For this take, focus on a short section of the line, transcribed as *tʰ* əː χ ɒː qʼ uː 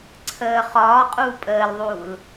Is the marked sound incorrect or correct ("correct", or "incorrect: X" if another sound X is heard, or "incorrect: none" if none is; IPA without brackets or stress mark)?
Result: incorrect: ǀʰ